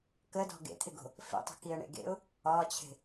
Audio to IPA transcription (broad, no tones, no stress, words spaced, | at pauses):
kədɔ̤ ɡḛt̪ʰɪɡo̤ | fḛ tˤə̤kiə̯ɳḛɡḛʊ̯ | ɒt͡ɕʰe̤